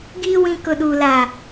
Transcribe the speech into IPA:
ɡiː˦ wĩ˦kʊ˦ɗuː˦ la˦

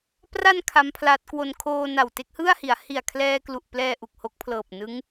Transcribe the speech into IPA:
pra˧n kʰa˦˥mpʰla˦˥t̚kwo˧n kʰoː˧ na˨˩wte˥˩k̚hɯ˥˩a̯hi˩˦a̯ hi˨˩a̯kʰlɛː˧klu˨˩ʔplɛː˧ ʔu˨˩k̚ho˦˥k̚pʰlɤː˨˩p̚nɯ˦˥ŋ

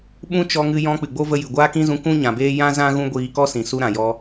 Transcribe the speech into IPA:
ɓũ˦t͡ʃɔ˧ŋɨ˧ jɔ̃˧ k͡pɨ˨ɡ͡bo˦və˧jɨ˨ ɡʷaː˦kĩ˦zũ˧ kũ˦ ɲã˨beː˦ jã˦zã˦ ɣũ˦ɡʷiː˧ kɔ˦sĩ˨su˧ ɾã˨jɔ˧

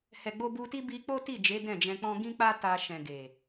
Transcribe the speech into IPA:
hɛ˨ɡ͡bo˧bu˧ti˦ bi˦ k͡po˦ti˦˨d͡ʒe˨˦ dɛ̃˦˨d͡ʒɛ̃˧k͡pɔ̃˦ ɡĩ˦k͡pa˦ ta˧ ʃɛ̃˨ ɡe˨

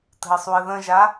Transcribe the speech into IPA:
tə̤ɪ̯sˤuə̯ðə̃ʒa

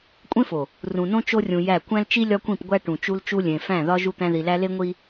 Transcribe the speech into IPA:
kʷʼẽ˦fo˨ | rũ˨nõ˦ t͡ʃo˦rʲũ˨jæ˦˨ kʷæ̃˦lt͡ʃi˦ lʲɒ˦kʷĩ˦˨pɡʷæ˦ ʈũ˨t͡ʃu˦l t͡ʃu˦ lʲẽ˨fæ̃˦˨ ðɒ˦ ʒu˦t̪æ̃˦ði˨læ˦ le˦ŋʷi˦

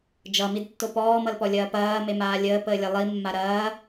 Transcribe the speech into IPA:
d͡ʒʌmidtːo pɔːmʌlpɔlʲɐː pɐːmemaː lʲəːpəːlʲɐ lˠimːa ɾɐː

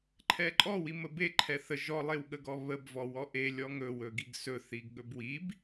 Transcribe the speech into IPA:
ǃʰɛǃʼɔ wiməbe ǃʰɛθə ʒɔlˠewɠəɡɔ βəb vɔwɔʔelʲɔ ŋɵwɵ ɡiɡsɵθiɡ ɠɵbwib

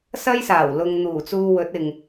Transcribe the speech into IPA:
sɐ˧jsaː˨˩w lʊ˨ŋ n̪uː˨˩t͡suː˨ wɵ˨˥t̚ɪ˨ŋ

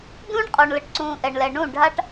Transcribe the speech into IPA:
dũː˦ɳqʼɔ˨ɳ lə˨ʈǀũː˨ ʔɛ˨ɳlɛ˨ ɳũ˦˨ ɖʱa˦ʈ

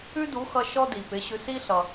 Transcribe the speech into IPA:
ʉ˥du˩˥xʌ˧ ʃɔ˥di˩pɪ˩˥ɕʉ˧s i˥ɬʌ˩

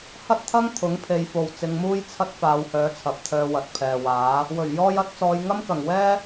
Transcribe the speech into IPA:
hɐ˥t̚t̪ʰɐ˥ŋ t̪ʰʊ˨˥ŋpʰe˨˧jfo˨w t͡sɪ˨˧ŋmuː˥j t͡sʰɐ˥t̚ faː˨˧whœː˨˥ t͡sʰɐ˨p̚t̪ʰœː˧wɐ˨t̚ pʰɛː˨waː˨˥ | wɵ˨˩ɥ jɔː˧jɐ˨˥t̚t͡sɔː˨˧j ŋɐ˥mkɐ˨˩ŋwɛː˥

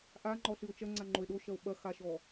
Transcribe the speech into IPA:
ʔaŋ͡ǃɔɬɨo̯ t͡ʃɐŋ͡ǀaŋ͡ǃoe̯ ɗoʃɐo̯ ɓɐxaʃɔ

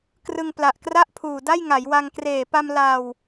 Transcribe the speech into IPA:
krɯ˧ŋ pla˨˩ʔkra˥˩ʔpʰuː˨˩ da˥˩jŋa˩˦jwa˧ŋ kreː˨˩pa˧m la˧w

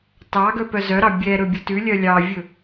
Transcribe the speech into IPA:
tɑɡœ pœzœɾɑ bʲɛɾɵ bʲɵtʉlʲœ lʲɑvʲɵ

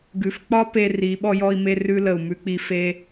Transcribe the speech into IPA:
ɡʉ˨fk͡pɒ˦ pe˦ ri˨˦ ɓɔ˧jɔ˧i̯me˧ rʉ˧lə˨u̯ mʉ˧k͡pi˧ fe˧

